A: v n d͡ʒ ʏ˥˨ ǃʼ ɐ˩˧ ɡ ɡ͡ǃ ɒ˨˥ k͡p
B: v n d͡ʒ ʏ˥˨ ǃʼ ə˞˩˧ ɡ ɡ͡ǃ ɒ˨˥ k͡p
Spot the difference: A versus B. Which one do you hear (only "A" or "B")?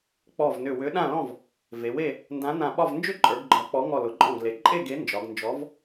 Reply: B